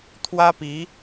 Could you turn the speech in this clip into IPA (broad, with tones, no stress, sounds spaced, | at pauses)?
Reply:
t̪ʰ w ä˥ p i˧˥